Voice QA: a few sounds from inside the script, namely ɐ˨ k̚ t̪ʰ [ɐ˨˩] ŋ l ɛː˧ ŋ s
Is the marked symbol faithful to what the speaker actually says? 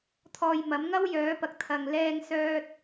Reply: no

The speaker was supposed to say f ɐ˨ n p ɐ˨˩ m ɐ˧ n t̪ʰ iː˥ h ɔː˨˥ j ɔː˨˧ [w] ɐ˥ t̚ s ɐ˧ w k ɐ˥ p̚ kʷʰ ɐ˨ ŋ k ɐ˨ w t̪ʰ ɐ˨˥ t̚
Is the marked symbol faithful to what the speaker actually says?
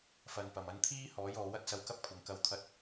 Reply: yes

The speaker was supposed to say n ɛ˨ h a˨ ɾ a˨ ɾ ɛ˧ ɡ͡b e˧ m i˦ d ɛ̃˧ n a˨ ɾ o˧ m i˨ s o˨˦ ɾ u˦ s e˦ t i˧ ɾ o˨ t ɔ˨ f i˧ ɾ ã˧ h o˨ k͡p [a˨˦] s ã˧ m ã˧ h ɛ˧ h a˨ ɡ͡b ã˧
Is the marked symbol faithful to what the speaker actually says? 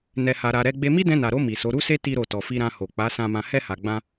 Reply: yes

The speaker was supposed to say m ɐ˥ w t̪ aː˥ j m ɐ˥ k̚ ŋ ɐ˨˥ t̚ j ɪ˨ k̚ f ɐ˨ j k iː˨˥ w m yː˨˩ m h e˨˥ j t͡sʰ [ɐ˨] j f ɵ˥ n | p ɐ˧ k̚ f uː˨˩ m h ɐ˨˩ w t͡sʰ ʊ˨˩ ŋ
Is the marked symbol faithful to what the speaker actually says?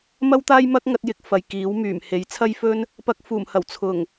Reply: no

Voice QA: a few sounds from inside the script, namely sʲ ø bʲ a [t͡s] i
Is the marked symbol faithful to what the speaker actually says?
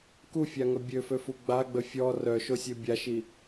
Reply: no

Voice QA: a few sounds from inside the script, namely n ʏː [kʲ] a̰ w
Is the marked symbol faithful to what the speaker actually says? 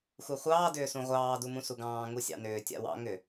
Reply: no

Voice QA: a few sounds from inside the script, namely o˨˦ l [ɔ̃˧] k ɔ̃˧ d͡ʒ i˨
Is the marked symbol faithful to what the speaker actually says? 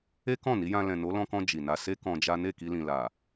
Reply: yes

